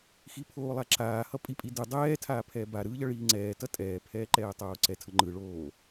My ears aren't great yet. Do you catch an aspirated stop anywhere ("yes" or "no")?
yes